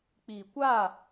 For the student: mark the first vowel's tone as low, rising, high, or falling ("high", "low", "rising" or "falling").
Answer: low